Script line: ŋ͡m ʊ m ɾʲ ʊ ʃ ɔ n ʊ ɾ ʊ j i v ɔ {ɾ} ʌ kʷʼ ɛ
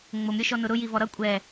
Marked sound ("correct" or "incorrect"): correct